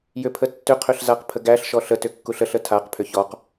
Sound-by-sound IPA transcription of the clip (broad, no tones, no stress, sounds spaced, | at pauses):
j ʏ pʰ ə tː ʏ qʰ ʏ ɬ z a q pʰ ə ɡ æ ɬ ʃ ɔ ɬ ə t ʏ kː u ɬ ə ɬ ə tʰ a q pʰ ʏ ç ɔ q